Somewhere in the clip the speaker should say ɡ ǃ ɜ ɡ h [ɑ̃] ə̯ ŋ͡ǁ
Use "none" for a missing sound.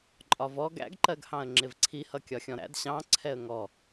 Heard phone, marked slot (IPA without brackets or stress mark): ɑ̃